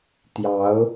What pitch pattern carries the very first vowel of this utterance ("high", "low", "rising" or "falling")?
rising